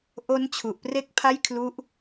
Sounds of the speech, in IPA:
ʔo˦˥n t͡ɕʰu˨˩ʔ pre˥˩k̚pʰa˥˩j kʰlu˦˥ʔ

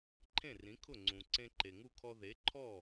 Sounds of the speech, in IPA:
ǃʰẽ˥˩rĩ˩˥kʰʊ˥˩ ŋ͡ǀũ˩ ǀẽ˧ǃe˩ŋu˥˩kʰɔ˧ ðe˩˥ ǃʰɔ˥˩

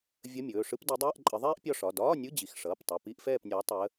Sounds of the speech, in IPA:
vʲə˧˥˧mʲɵː˩˧˩ʂɯ˥p di˨˦dˤɛː˧˥˧ʔǃʼə˨˦ ðˤɛː˥ʔpʲɒ˦˨ʂɒ˩˧˩ dɒː˧˥˧nʲɯ˧˥˧d͡ʑi˩˧˩x ʂʌː˩˧˩ptˤʌ˩˧˩ pi˧˥˧ʔfɛː˦˨pnʲɒː˨˦ tˤəː˨˦

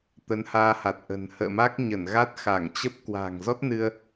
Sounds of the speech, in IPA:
t̪ə˨˦nhaː˧ha˨˩t̚ʔə̤˨˩n hə̰ː˧˨ma˦˥k̚ ɲə˧˩nɣa˦˥t̚ xa˧˩ŋt͡ɕə˦˥p̚ kwa̤ː˨˩ŋzɔ˦˥t̚nɨ˧ə̯

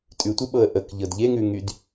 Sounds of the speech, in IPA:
tʼʉtʷeɓɤə̯ ʔəkʎɤd ʎeŋʉŋyd

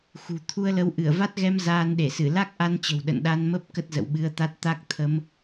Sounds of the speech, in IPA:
xṳ˨˩ t̪ʰu˧ə̯lə˨˦w ʔɨ˧˩ə̯va˦˥t̚ɣɛ˧m zaː˧nɗe˧˩sɨ˧˩ la˦˥k̚ ʔa˧nt͡ɕə̤˨˩w ɗə̰˧˨nɗa˧nmə˦˥p̚ kə˦˥t̚zə̰˧˨wɓɨ˧ə̯t̪a˦˥t̚ t̪a˦˥k̚t̪ʰə˨˦m

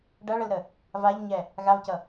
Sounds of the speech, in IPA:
ɖɐɭəlɾə | vaʎɲɛ | ɣavcʌ

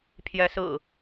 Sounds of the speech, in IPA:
pʰjɛ˨˦sɹ̩˨˩

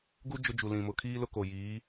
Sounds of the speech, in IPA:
ɡu˦ d͡ʒʊ˦d͡ʒu˨lĩ˨mʊ˨ kʰiː˦lʊ˦ko˨ jiː˨˦

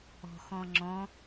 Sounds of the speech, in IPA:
ɔ̤xɔ̃ ŋ͡ǁɔ̃

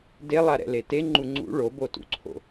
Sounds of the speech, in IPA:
delˠaɾɛ̰le teŋ͡ǃu ŋ͡ǀṵ ɭobotṵǀʰo̰

